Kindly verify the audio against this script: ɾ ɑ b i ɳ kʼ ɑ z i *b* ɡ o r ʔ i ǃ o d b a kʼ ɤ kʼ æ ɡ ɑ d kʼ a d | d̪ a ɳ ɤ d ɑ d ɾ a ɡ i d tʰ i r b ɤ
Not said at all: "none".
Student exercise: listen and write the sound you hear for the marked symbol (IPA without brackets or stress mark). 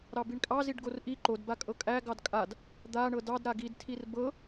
ɖ